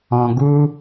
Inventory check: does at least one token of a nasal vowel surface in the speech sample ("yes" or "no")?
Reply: yes